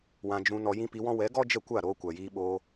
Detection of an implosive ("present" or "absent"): present